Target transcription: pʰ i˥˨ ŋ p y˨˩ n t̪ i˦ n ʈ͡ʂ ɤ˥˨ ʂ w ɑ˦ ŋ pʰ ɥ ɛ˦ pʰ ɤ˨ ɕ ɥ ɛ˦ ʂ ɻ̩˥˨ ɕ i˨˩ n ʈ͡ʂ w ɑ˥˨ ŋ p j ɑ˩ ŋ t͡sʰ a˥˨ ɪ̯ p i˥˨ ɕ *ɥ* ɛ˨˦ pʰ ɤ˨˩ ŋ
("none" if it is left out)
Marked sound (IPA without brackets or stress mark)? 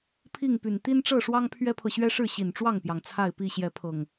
j